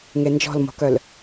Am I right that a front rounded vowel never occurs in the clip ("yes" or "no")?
no